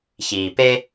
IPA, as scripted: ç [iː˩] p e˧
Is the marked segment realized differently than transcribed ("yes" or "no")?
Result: no